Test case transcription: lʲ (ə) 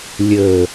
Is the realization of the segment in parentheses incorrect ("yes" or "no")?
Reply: no